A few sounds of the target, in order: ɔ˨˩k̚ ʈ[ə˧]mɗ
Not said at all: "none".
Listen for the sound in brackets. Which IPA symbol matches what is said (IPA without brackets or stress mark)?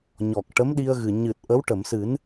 ə˧˥